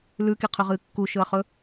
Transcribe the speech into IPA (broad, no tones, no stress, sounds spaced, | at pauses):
l ʉ k i qʰ ʉ ʁ ɨː kː u ʃ ɵ ɐ̯ χ ɵ